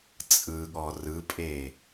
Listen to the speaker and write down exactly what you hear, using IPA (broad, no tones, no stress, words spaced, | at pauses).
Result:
t͡sʼɯɠɔ rɯpʼe